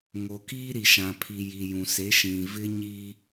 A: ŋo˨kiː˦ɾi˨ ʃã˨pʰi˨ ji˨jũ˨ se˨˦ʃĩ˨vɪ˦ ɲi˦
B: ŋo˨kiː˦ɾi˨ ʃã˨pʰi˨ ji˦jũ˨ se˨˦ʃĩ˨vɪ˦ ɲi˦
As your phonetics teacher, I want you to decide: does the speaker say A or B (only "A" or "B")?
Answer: A